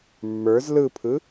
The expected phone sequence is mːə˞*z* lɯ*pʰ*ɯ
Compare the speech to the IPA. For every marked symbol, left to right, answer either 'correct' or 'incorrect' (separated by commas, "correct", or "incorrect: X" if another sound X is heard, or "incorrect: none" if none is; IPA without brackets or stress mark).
correct, correct